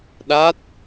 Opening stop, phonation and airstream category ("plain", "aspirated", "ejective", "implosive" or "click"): implosive